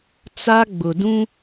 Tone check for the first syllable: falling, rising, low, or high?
high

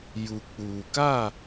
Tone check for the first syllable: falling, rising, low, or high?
low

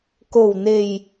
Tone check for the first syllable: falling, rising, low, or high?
low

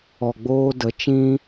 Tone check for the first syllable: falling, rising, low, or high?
low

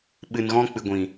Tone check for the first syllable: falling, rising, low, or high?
low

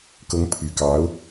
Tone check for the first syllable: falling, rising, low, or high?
rising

